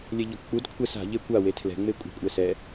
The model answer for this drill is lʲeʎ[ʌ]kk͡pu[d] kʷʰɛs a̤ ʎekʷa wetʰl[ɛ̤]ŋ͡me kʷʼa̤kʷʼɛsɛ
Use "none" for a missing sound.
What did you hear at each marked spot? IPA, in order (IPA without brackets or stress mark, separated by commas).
ɔ, d, ɛ̤